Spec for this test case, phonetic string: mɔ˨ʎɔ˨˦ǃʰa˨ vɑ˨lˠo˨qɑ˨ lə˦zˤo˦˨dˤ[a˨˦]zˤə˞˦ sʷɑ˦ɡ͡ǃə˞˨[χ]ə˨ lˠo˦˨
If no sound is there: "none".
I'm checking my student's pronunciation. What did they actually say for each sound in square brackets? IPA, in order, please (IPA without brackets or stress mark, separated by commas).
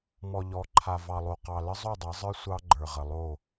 a˨˦, ʁ